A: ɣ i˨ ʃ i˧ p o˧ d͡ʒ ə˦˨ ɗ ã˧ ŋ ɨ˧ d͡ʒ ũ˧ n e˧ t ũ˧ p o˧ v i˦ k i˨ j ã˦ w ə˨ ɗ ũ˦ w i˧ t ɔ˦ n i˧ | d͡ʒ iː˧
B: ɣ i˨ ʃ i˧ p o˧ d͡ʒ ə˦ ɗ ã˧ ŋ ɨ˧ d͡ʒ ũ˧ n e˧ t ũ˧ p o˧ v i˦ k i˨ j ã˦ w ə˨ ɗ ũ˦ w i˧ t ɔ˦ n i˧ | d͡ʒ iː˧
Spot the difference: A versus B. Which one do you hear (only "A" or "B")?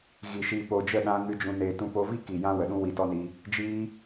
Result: A